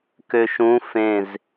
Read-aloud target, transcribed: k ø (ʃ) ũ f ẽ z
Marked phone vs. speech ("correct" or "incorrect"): correct